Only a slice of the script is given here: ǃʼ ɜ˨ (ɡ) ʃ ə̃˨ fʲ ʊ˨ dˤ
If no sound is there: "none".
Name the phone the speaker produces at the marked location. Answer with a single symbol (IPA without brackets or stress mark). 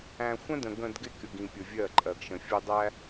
ɡ